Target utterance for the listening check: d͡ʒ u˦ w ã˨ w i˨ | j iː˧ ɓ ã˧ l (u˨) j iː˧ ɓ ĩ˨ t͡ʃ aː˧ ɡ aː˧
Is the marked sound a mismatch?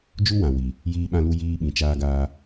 yes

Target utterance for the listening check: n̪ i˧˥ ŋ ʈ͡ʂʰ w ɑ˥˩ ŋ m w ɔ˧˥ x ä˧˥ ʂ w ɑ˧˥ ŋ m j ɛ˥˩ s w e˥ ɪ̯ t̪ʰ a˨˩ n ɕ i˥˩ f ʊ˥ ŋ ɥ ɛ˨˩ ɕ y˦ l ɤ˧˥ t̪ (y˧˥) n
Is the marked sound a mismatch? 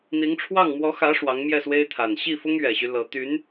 no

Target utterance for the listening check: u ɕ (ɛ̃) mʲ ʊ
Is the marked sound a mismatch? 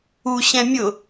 no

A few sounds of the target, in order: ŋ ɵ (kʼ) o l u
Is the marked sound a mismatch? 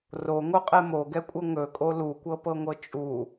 no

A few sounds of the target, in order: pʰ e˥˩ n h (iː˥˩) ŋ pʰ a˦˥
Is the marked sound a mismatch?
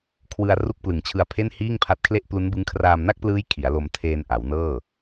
no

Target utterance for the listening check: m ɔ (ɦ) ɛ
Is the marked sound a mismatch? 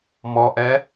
yes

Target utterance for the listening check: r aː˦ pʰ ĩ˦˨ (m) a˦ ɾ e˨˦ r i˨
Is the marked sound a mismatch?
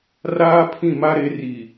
no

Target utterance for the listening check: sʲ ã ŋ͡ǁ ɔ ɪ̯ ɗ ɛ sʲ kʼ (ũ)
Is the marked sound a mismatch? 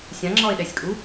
yes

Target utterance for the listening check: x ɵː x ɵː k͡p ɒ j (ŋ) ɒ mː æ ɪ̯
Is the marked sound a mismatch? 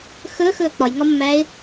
no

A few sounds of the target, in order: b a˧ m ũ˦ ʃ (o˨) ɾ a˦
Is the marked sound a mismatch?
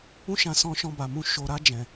yes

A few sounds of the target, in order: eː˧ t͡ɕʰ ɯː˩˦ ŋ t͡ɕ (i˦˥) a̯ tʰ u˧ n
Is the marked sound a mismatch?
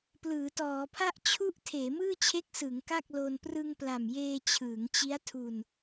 no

